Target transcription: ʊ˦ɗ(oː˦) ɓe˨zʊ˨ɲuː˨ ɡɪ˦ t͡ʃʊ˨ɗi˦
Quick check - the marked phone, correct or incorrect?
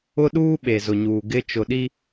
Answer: incorrect